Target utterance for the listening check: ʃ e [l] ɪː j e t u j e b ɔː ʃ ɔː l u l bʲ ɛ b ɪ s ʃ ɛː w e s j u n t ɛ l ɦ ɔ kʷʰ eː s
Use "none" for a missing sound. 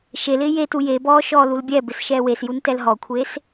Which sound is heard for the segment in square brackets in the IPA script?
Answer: l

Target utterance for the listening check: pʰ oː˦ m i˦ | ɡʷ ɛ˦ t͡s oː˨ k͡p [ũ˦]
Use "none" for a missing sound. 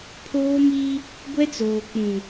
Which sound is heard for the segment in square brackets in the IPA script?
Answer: ũ˨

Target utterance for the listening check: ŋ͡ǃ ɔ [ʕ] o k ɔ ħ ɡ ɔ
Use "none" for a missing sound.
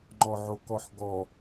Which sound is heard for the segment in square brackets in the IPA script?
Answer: ʕ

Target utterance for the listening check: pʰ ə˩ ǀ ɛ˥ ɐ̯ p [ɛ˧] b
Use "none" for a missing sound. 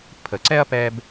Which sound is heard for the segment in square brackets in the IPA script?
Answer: ɛ˧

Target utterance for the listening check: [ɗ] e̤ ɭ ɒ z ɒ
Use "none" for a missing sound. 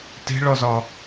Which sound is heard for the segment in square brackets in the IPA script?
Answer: t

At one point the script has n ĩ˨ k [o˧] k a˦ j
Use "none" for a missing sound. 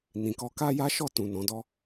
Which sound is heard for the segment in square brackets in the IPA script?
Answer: ɔ˧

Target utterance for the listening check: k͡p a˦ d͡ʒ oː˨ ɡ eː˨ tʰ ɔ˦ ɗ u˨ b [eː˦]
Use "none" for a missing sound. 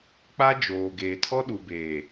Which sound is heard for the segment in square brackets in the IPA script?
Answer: eː˨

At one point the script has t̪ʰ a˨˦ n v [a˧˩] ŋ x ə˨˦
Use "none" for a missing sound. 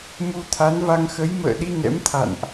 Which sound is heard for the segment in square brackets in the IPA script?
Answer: a˧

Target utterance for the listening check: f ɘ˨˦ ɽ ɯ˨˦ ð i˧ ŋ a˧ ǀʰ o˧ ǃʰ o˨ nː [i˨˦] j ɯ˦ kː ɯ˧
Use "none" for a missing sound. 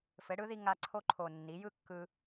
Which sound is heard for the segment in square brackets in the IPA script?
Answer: i˨˦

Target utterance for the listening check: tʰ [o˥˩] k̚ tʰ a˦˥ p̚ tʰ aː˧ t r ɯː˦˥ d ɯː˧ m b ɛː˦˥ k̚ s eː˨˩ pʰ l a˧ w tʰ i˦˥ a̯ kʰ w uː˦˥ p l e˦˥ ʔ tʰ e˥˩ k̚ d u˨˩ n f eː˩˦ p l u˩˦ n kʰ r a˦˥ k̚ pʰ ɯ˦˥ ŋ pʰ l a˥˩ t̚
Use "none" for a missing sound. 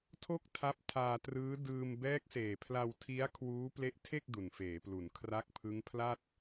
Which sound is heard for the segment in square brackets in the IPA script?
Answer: o˥˩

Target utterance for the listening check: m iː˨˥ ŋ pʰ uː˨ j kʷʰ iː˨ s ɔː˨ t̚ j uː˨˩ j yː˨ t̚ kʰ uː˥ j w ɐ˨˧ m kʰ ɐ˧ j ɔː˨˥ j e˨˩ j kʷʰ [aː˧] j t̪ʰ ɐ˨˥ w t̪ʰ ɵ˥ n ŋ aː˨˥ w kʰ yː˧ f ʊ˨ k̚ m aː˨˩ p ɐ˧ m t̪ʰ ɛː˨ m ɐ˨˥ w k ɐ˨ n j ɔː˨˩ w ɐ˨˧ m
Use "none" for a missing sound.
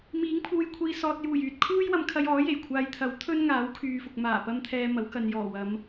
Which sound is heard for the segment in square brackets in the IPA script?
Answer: aː˨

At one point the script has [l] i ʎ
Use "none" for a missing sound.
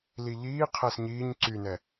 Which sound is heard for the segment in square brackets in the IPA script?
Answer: l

